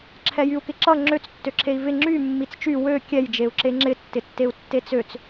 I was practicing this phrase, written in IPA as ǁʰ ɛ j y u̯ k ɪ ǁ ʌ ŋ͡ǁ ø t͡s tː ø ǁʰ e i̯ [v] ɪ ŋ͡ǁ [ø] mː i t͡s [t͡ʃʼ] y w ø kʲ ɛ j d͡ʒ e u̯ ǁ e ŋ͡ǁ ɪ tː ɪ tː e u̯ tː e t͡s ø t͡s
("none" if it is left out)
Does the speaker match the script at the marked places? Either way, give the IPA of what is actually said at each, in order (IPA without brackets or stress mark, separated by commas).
v, y, t͡ʃ